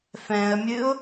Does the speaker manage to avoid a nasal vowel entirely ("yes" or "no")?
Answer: no